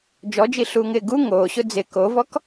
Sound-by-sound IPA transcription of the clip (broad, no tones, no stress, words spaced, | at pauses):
d͡ʒɔd͡ʒiɬuːŋɪː ɡu ŋoːɕʊ d͡zɪ kovɔk